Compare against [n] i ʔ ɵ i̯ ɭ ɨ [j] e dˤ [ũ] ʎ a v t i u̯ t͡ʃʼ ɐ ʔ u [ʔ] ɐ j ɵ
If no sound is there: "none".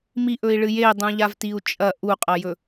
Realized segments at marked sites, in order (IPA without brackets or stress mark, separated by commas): m, j, ũ, qʼ